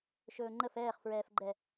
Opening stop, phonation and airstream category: click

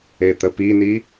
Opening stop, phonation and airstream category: plain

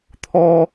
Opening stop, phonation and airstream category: aspirated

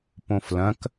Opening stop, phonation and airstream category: plain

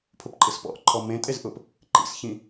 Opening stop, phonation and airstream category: aspirated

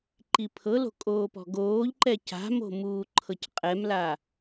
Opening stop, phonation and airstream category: click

